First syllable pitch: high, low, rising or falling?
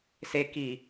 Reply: low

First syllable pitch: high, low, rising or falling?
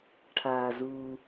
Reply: low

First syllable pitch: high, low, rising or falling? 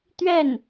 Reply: falling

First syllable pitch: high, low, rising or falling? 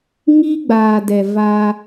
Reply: high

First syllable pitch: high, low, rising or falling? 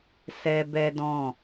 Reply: high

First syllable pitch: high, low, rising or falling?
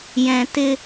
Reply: low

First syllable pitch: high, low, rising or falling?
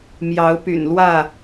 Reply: rising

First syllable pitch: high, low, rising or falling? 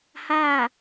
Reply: falling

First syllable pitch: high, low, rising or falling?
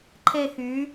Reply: falling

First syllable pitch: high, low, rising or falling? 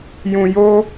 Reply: low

